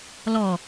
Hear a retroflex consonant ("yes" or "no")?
no